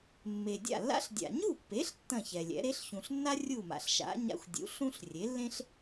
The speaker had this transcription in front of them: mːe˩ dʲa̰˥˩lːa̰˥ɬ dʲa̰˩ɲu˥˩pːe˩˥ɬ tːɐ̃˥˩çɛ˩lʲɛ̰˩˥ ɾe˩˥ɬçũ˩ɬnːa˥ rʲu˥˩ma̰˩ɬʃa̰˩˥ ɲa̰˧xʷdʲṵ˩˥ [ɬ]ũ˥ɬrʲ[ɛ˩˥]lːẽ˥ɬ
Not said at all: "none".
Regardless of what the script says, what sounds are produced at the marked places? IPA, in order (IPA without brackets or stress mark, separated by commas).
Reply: ɬ, e˩˥